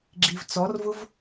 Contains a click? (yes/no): yes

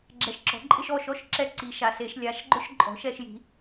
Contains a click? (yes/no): yes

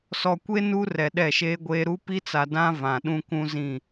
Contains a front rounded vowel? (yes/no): no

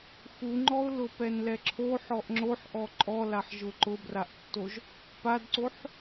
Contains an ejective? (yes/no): yes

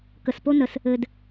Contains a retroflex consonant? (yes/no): no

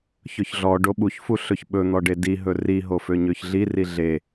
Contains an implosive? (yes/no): yes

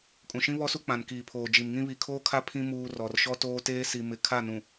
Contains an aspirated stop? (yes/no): yes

